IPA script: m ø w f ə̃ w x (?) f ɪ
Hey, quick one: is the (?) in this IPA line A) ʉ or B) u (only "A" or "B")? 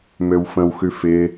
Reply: A